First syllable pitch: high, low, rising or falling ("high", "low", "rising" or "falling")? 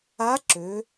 rising